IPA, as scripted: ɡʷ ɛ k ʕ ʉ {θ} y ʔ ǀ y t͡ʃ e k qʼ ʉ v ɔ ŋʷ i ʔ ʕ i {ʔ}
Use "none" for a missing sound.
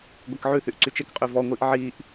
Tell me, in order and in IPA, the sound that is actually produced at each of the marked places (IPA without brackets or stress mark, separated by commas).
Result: θ, ʔ